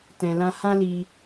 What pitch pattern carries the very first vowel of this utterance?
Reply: low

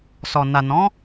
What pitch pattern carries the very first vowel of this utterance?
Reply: low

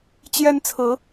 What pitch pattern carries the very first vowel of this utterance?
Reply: high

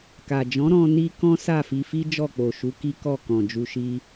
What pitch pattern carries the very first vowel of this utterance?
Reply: low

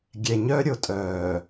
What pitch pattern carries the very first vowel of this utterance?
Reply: low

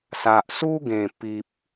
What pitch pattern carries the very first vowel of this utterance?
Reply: low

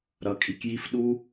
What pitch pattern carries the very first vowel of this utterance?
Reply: low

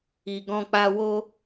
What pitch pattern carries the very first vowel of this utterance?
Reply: low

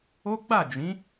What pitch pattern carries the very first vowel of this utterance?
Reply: high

